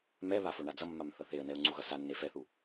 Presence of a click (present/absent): present